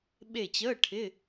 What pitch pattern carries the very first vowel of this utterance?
falling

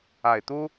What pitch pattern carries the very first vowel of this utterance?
low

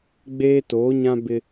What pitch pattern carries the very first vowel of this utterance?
high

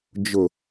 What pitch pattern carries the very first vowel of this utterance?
low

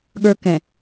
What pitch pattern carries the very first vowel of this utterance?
high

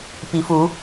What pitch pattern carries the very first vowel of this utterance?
rising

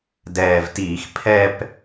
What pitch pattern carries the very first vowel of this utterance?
low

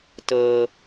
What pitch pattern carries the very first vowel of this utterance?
high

